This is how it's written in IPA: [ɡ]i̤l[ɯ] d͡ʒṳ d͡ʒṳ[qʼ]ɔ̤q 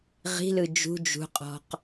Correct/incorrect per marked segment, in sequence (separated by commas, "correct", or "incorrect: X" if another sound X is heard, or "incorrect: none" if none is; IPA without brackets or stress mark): incorrect: ʁ, correct, correct